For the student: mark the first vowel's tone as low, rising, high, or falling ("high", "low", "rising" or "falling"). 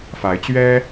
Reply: rising